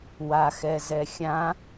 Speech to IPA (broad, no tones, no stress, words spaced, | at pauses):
waxɛzɛ xʲã